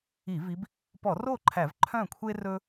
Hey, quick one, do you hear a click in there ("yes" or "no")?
yes